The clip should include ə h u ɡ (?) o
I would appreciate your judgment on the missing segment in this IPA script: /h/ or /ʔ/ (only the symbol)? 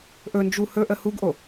ʔ